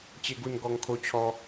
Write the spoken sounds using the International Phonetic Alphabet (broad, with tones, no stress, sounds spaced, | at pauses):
t͡ɕ e˥˧ ɡ u˥˧ n ɡ ɔ˧ ŋ kʰ o˧ t͡ɕʰ ɔ˧